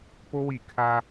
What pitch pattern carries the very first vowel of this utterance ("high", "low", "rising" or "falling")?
high